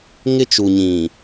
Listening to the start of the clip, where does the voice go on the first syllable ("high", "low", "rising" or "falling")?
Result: high